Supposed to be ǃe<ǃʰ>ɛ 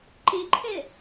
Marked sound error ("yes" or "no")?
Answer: no